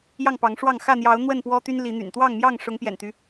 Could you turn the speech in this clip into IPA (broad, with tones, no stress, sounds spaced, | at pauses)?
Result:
j ɑ˥˨ ŋ p ɑ˨˦ ŋ ʂ w ɑ˥˨ ŋ x ä˥˨ n̪ j ɑ˨˦ ʊ̯ n̪ w ə˥˨ n p w ɔ˦ t̪ y˦ n l i˨˦ n̪ y̰˨˩ n t̪ w ɑ˥˨ ŋ m j ɑ˥˨ ŋ ʂ ʊ˨˦ ŋ p j ɛ̰˨˩ n t̪ y˦